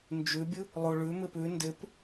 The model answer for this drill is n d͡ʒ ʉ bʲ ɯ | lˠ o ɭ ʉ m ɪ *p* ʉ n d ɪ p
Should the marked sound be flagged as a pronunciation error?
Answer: no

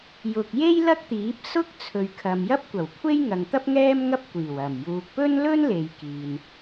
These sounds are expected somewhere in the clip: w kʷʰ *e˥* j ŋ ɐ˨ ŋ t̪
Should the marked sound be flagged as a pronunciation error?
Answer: no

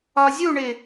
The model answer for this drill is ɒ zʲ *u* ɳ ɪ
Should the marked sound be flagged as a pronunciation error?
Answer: no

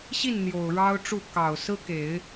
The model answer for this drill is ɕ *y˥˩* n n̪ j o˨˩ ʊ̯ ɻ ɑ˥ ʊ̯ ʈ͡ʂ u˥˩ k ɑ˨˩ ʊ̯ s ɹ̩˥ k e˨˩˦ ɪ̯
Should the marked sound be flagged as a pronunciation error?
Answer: yes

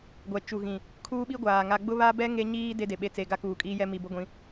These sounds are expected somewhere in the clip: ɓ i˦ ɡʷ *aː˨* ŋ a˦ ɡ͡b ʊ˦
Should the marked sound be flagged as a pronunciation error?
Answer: no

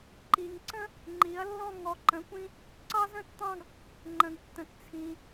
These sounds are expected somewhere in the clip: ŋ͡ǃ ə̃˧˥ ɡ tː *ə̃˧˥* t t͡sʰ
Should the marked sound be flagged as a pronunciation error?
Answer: no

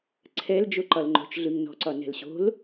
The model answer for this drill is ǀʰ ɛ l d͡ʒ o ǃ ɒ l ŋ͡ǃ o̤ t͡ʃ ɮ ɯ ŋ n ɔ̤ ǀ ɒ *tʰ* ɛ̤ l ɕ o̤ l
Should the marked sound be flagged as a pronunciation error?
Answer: yes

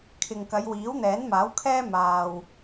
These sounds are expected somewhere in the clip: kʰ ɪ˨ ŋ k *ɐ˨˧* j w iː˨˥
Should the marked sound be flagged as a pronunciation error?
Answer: no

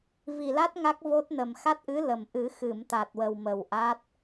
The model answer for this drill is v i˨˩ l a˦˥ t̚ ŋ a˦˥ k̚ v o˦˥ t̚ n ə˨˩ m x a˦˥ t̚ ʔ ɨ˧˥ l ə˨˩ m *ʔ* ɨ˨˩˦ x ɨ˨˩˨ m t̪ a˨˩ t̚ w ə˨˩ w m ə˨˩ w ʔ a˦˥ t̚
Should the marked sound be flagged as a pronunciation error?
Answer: no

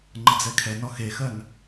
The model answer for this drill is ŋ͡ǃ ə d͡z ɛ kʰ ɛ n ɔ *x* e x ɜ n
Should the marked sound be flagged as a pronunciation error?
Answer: no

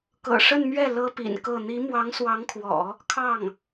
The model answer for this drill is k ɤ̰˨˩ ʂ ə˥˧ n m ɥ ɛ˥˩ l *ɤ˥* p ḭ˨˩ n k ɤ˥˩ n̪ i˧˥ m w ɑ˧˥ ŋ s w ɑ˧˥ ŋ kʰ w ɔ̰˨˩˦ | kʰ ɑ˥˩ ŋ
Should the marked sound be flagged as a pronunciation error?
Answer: no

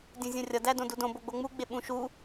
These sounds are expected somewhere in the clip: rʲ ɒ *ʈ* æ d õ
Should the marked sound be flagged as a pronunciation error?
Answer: yes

